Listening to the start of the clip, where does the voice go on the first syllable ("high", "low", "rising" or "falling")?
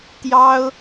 high